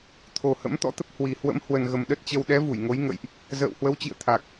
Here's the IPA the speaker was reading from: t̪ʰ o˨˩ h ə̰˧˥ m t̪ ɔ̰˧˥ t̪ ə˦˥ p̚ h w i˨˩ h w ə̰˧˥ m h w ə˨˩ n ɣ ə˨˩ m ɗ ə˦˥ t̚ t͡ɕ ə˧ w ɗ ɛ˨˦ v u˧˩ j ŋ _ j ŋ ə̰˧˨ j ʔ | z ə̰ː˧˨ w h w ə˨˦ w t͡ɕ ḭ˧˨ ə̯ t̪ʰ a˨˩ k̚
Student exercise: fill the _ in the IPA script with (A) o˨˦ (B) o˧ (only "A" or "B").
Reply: A